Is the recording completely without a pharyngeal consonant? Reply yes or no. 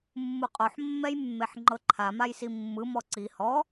no